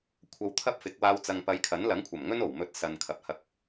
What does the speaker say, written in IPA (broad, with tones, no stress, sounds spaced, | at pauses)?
kʷʰ ɐ˧ w t̪ʰ ɐ˥ p̚ f ɪ˨˥ k̚ w aː˧ w t͡s ɐ˨ ŋ p ɐ˨˧ j kʰ ɐ˨˥ n l ɐ˨˥ ŋ kʷʰ ɐ˨˩ m ŋ ɵ˥ n o˨˩ w m ɵ˨˥ t̚ s ɐ˨ n kʰ ɐ˨ p̚ h ɐ˧ k̚